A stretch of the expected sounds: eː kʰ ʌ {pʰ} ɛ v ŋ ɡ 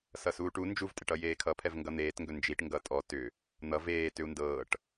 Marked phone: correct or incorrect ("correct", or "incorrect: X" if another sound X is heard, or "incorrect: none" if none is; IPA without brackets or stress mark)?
correct